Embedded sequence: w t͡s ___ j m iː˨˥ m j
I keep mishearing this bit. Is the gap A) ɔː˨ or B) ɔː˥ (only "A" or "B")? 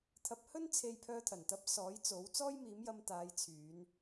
B